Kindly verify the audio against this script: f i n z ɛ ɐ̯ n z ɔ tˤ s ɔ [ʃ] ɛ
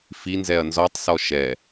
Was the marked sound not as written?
no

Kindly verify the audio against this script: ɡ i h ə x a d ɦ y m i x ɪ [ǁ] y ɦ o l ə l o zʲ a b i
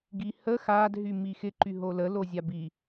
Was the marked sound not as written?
yes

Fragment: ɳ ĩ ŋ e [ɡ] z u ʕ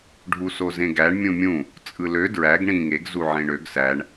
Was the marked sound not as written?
no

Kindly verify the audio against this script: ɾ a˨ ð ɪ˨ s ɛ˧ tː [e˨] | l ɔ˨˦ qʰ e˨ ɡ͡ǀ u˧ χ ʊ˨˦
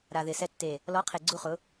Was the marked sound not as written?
no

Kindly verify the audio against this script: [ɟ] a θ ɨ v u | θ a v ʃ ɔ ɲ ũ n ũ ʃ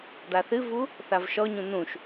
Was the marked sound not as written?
yes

